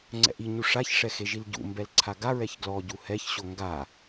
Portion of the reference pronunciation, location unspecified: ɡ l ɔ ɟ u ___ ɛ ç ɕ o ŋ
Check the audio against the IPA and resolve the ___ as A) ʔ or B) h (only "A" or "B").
B